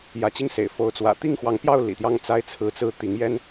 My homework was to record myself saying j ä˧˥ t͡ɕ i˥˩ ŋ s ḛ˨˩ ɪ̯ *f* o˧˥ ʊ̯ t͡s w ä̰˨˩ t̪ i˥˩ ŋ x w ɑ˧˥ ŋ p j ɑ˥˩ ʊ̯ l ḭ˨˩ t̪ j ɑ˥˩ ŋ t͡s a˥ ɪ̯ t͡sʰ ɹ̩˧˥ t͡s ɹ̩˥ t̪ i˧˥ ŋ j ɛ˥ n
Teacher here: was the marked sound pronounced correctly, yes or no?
yes